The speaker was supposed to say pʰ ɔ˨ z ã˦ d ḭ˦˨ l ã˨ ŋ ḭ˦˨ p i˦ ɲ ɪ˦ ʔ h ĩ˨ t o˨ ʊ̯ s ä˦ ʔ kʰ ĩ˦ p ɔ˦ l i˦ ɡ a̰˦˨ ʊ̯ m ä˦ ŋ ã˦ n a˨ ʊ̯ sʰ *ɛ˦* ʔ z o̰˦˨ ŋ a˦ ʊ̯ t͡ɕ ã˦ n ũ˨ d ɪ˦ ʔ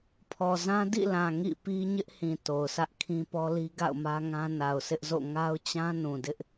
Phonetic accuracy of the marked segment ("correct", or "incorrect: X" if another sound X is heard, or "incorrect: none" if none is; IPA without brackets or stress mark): incorrect: ɪ˦